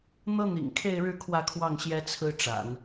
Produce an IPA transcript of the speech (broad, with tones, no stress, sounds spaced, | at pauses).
n̪ ɤ˥ n̪ ḭ˨˩ ŋ kʰ e˥˧ ɪ̯ ɻ ɻ̩˥˧ kʰ w ä˥˧ kʰ w ɑ˥˩ ŋ ɕ j ɛ˥ t͡sʰ ɹ̩˥ ʈ͡ʂ a̰˨˩˦ n